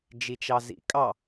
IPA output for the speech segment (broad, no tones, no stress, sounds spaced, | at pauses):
d͡ʒ i t͡ʃ ɑ z ḭ kʼ ɑ